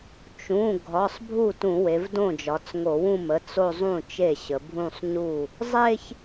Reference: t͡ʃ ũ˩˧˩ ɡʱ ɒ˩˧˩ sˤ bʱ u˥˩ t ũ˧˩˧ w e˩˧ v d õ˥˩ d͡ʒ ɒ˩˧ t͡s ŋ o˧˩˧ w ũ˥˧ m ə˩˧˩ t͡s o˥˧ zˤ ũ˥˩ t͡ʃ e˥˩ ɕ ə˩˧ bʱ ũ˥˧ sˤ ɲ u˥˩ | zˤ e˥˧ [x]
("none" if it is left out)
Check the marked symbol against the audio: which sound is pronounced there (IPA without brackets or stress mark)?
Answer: ç